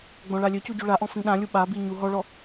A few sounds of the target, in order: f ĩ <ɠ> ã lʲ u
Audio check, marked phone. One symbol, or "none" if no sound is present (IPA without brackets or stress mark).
ɗ